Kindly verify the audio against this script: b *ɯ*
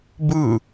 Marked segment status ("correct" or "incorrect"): correct